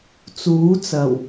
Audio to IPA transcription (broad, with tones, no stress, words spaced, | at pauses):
t͡suː˨˥t͡sɐ˨˩w